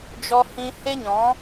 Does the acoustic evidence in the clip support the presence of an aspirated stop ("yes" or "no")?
no